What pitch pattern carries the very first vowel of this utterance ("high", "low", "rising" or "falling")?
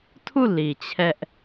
falling